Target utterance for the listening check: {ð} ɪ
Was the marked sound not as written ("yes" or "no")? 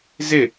yes